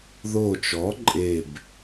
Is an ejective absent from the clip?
no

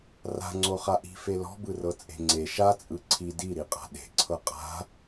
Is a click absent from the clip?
no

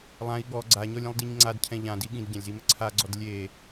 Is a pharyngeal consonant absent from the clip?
yes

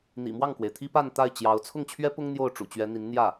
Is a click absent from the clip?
yes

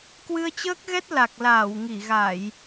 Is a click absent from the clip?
yes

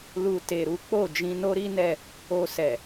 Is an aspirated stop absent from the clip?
yes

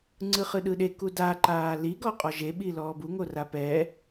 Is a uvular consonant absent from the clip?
no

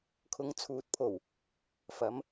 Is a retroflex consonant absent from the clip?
yes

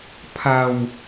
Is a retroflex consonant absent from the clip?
yes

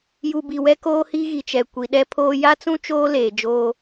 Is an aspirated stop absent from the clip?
no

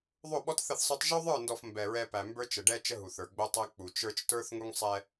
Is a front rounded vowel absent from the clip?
yes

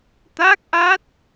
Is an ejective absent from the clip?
yes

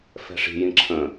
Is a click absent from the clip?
no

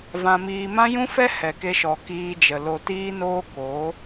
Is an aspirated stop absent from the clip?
yes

